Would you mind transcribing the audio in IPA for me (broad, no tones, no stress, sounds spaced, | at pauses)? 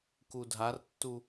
k u dʱ a r tː u